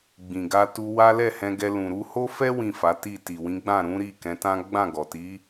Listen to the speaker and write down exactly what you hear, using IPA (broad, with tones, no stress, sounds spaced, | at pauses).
ɡ͡b ĩ˨ ɡ a˧ t u˧ w a˦ l ɛ˦˨ h ɛ̃˧ ɡ ɛ˧ l ũ˨ ɾ u˧ h o˦ f ɛ˦ w ĩ˦˨ f a˨˦ t i˦˨ t i˨ w ĩ˨˦ ɡ͡b ã˦˨ ɾ ũ˨˦ ɾ i˦˨ k ɛ̃˨˦ t ã˦ ɡ͡b ã˦˨ ɡ ɔ˨ t i˨˦